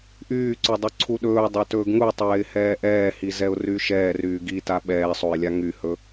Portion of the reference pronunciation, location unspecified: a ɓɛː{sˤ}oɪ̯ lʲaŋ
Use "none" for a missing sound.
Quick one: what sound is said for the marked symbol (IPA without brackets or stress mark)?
sˤ